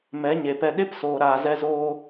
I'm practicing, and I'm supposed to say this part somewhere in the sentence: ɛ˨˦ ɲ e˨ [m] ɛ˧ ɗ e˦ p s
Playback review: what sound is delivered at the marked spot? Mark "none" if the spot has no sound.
p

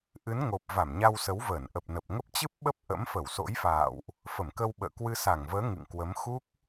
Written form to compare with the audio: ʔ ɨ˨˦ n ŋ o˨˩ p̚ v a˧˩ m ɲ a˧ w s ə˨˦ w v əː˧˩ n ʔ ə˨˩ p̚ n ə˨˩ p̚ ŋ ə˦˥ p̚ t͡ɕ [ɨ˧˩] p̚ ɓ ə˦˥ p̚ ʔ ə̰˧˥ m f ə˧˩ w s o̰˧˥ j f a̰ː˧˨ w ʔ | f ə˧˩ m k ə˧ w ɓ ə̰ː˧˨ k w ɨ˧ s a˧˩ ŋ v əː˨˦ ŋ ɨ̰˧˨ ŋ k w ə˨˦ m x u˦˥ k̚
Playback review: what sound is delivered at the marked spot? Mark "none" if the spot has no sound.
ɨ˦˥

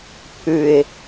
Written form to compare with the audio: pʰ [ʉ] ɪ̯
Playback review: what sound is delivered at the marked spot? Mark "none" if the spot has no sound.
ʉ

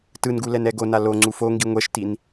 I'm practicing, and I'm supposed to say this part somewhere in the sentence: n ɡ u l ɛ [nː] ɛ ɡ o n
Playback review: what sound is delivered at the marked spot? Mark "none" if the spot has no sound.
n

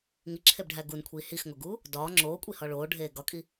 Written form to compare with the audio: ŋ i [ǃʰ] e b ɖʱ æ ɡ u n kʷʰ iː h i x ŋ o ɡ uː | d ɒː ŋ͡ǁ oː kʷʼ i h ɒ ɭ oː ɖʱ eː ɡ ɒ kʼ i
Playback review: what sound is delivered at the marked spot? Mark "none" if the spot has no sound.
ǁʰ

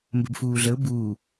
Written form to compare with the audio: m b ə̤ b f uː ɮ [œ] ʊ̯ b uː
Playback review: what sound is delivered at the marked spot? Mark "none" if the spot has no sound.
ə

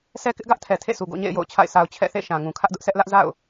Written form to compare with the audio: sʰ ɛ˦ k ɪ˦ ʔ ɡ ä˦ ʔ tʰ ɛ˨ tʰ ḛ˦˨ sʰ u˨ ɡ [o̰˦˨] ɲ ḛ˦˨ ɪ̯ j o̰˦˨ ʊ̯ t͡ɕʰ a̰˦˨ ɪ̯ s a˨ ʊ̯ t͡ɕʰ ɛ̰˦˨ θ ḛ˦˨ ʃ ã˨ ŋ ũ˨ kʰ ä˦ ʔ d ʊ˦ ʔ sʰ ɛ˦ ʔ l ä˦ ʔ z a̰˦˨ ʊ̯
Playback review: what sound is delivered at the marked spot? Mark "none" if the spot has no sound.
o̰˦˨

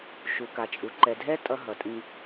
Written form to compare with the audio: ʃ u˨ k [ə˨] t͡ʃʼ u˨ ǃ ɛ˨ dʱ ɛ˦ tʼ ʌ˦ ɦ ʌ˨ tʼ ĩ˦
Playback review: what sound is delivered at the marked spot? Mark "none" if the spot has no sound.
a˨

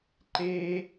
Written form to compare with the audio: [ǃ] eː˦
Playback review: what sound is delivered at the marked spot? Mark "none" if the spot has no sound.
ǃ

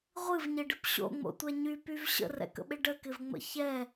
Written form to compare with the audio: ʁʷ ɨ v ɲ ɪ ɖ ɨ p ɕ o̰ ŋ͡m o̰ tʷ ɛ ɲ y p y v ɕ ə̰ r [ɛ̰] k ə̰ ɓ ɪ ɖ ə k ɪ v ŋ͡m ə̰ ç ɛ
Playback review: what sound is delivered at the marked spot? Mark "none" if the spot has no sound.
ɛ̰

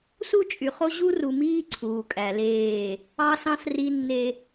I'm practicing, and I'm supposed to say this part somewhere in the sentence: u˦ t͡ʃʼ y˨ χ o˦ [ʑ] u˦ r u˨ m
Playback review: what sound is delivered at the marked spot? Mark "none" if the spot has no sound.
ʑ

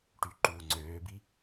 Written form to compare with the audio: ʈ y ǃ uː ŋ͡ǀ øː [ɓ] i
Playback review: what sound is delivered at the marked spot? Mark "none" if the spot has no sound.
b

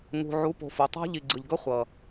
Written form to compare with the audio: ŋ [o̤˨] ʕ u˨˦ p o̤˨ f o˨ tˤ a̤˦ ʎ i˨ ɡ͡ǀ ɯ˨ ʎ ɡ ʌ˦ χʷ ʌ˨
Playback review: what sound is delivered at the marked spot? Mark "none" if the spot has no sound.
ṳ˨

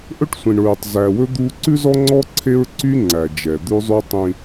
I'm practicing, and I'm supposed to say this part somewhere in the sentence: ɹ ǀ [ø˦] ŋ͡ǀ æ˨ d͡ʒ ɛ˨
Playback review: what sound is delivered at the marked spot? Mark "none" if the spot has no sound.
y˦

